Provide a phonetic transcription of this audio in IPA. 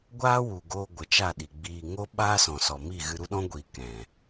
ɡʷ aː˦ w u˨ ɡ oː˧ ɡʷ ə˨ t͡ʃ a˦˨ ɗ i˨ ɡ͡b iː˧ ŋ o˦ ɓ aː˦ s ɔ̃˨ s ɔ˨ m i˦˨ ɣ ɨ˧ ɾ u˦ ɗ ɔ̃˦ ɡʷ iː˨ k ɛ̃˨

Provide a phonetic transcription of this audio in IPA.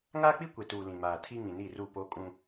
ŋ aː˦ k͡p i˦ kʷ e˨ t uː˨ l ĩ˨ m aː˨ tʰ i˦ ŋ ĩ˨ n i˦˨ r u˦˨ p o˦ kʼ ũ˦

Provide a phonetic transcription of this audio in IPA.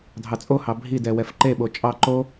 dʱ ɑ t͡sʼ o h ɑ bʱ i d ɛ w ɛ f ǃ e ɓ o t͡ʃʼ ɑ ǃ o

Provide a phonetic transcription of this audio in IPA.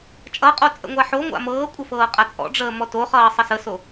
t͡ʃʼ ʌ qʼ o t͡sʼ ə̰ ŋʷ a ħ o ŋʷ a̰ m ɤː kʷʼ ə f ɤː qʼ a t͡sʼ ɔ̰ ɖ͡ʐ əː m ɔ t o χ ʌː sˤ ʌ s ə s o

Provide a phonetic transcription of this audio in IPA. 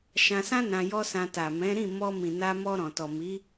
ʃ ã˧ s ã˦ n ã˧ j ɔ˦ s ã˧ t a˨ m ɛ̃˨˦ ɾ ĩ˦˨ m ɔ˧ m ĩ˨ n a˧ m ɔ˧ ɾ ɔ̃˨ t ɔ˨ m i˨˦

